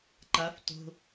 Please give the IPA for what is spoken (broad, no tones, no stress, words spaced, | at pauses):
ǃaf to̤